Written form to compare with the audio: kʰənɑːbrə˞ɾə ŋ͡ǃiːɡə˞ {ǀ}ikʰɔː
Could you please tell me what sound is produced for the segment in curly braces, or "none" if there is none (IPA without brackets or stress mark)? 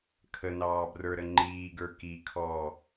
k